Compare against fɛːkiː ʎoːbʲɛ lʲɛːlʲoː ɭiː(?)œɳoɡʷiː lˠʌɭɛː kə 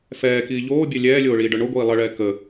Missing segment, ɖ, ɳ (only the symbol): ɖ